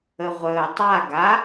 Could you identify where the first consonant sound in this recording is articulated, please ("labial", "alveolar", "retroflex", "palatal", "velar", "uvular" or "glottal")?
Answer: uvular